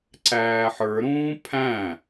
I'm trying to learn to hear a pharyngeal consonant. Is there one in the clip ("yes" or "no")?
yes